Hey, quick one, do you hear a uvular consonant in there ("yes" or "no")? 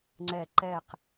yes